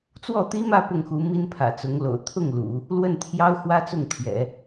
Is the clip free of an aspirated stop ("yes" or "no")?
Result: no